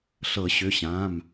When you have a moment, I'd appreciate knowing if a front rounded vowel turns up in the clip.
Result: yes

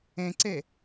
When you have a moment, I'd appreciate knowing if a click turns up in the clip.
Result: yes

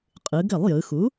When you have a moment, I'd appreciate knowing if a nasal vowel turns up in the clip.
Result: no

